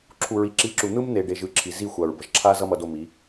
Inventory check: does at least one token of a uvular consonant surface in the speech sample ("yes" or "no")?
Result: no